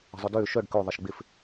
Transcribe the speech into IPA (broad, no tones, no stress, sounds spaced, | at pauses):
ə̤ zˤ ʊ d ʏː ʃ œ ɖ k ø ðˤ ə ʃ ɡ͡b ɪ f